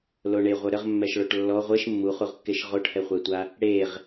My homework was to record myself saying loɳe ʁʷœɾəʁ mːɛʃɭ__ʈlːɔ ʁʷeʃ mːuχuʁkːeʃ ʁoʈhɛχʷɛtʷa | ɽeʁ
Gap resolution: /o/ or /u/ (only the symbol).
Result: o